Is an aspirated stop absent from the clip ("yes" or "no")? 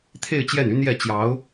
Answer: no